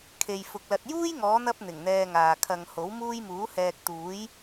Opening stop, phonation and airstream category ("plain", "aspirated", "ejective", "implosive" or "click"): aspirated